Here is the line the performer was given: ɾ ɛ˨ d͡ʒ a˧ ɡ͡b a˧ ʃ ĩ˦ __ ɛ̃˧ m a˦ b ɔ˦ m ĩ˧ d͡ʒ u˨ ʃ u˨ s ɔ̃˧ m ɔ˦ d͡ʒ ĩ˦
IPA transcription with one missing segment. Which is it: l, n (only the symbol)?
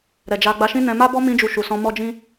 n